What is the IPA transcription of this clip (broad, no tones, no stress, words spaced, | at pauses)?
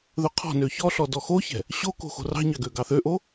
ðɵqʰɔ̤nø çɔɬɔ dɔxoçɛ̤ | ɕoko̤ xo̤rɑ̤ɲɑ ɡøɡɑθøʔo